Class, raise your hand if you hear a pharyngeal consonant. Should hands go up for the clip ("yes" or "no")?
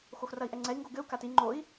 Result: no